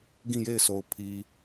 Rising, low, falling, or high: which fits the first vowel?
falling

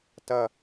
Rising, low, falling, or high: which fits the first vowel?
falling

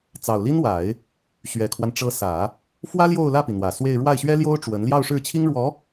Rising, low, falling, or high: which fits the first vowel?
low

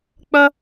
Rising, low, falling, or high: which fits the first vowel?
high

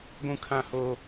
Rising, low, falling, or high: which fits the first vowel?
high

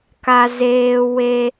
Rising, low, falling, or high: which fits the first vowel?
high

